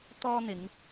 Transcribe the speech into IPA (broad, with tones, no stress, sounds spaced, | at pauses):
t̪ ɔː˥ n̪ ɪ˨˧ ŋ